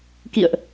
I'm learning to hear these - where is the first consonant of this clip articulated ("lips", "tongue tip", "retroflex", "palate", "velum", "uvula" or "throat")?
velum